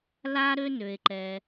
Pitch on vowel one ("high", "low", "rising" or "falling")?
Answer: high